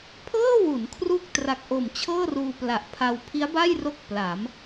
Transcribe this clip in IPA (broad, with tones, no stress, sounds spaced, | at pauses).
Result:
pʰ ɤː˥˩ w u˩˦ n kʰ r u˥˩ k̚ t r a˨˩ k̚ ʔ o˨˩ m t͡ɕʰ ɤː˥˩ r uː˧ p l a˨˩ ʔ pʰ a˧ w pʰ i˦˥ a̯ b a˥˩ j r o˥˩ k̚ p l a˩˦ m